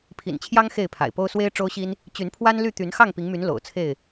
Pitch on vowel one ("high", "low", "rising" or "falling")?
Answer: low